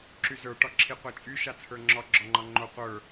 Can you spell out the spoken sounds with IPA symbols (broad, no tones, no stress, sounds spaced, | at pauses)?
ǁ y z ə˞ ʈ ɒ ǁʰ i qʷ a t͡ʃʼ y ʃ a t͡sʰ ə˞ ŋ͡ǁ ɒ ɡ͡ǁ ɒ ŋ͡ǃ ɒ ŋ͡ǃ o qʷ ə˞